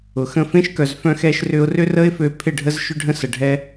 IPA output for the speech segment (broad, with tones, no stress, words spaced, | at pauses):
ʊ˨xə̃˦ fẽ˦ʃkœ˨z fœ̃˦xɛ˦ʃrʏ˦ʊ̯ rʏ˦rə˦ɪ̯fø˧ pʰɪ˦˨ɖʱə˦z ʃʏ˦ɖʱə̃˦sə˨ɖʱɛ˦